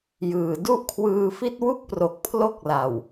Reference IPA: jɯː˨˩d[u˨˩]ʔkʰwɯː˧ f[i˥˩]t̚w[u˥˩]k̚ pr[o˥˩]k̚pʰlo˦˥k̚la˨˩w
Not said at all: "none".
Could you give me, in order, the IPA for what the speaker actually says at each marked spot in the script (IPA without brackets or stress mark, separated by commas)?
u˥˩, i˥˩, u˥˩, o˨˩